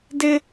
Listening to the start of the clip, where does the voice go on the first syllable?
high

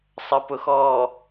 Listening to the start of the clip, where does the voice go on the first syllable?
low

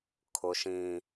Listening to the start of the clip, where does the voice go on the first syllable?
low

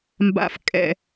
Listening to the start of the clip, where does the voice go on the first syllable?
low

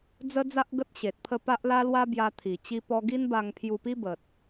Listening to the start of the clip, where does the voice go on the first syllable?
high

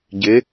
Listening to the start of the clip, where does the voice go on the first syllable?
rising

